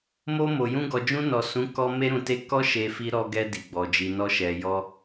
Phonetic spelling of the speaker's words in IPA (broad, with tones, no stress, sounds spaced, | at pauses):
m o˧ m o˨ j ũ˧ ɡ ɔ˨ d͡ʒ ũ˧ n ɔ˨ s ũ˨˦ k ɔ˧ m e˧ ɾ ũ˨ t e˧ k ɔ˦ ʃ e˧ f i˧ ɾ ɔ˧ ɡ ɛ˧ d i˨ ɡ͡b ɔ˨ d͡ʒ i˨ n ɔ˧ ʃ ɛ˨ j ɔ˧